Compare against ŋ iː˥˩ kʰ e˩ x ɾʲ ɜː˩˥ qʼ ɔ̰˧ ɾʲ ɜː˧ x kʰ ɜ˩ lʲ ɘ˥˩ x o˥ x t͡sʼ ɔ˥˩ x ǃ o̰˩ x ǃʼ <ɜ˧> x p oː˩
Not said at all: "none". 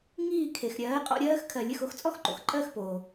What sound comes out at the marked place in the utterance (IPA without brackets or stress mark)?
ɜ˥˩